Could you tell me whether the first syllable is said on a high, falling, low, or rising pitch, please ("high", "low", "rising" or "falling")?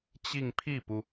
falling